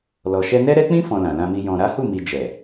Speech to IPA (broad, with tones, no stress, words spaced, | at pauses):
lɔ˨ʃɛ˧nɛ˦ ɾɛ˦k͡pĩ˦ fɔ̃˧lã˨lã˧mi˧ jɔ̃˨ɾa˨˦hu˦˨mi˨ d͡ʒɛ˨